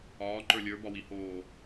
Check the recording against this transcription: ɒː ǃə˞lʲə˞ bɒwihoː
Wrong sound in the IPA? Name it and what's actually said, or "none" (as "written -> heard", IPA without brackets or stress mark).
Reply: none